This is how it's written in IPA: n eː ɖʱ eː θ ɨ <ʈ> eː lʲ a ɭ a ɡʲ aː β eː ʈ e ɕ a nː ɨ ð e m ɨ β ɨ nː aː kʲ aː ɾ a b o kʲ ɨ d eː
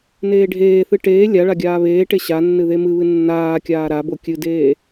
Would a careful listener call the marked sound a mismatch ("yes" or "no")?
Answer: no